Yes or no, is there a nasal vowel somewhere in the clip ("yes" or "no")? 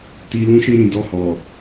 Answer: yes